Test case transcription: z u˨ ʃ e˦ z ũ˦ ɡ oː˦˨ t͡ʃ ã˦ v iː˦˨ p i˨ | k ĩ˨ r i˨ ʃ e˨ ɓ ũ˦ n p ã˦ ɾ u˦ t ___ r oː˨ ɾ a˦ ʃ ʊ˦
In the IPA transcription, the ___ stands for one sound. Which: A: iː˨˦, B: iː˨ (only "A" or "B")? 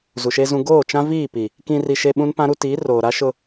A